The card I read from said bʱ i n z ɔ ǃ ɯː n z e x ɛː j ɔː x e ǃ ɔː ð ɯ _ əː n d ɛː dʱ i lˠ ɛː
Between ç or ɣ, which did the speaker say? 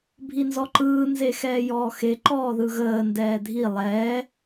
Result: ɣ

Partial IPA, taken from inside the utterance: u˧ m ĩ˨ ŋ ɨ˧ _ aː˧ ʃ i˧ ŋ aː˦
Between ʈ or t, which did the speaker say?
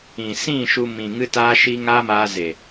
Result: t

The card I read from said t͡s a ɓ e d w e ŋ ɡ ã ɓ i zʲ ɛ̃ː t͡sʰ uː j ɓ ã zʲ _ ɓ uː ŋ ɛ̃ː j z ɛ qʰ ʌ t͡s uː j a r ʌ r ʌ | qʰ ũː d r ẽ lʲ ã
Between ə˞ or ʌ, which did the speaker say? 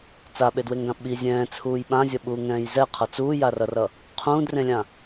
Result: ʌ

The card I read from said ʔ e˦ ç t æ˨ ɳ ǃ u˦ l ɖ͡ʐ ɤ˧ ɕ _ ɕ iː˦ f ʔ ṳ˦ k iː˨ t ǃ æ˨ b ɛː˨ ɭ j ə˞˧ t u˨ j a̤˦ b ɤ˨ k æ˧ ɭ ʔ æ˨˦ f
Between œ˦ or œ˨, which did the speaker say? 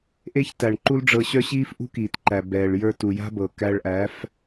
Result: œ˦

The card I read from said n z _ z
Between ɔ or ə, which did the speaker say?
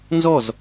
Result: ɔ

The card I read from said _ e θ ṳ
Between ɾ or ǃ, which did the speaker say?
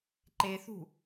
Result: ǃ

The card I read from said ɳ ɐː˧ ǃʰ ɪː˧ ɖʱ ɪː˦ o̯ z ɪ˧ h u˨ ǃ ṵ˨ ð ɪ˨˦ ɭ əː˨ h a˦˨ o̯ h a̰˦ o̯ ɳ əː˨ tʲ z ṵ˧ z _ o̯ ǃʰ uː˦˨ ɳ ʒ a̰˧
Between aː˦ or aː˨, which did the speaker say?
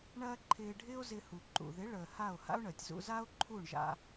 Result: aː˦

